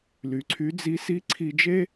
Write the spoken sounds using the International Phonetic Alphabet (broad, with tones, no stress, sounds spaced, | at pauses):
l y˩ ǀʰ y˧˥ d͡z i˧˥ s i˧˥ ǀʰ i˧ d͡ʒ e˥